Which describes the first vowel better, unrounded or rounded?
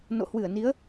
rounded